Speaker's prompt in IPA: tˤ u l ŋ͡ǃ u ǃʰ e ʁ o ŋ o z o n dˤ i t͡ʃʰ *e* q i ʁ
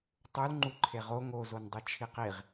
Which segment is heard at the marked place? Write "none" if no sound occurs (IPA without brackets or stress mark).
i